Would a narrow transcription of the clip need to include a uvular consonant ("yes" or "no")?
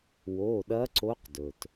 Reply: yes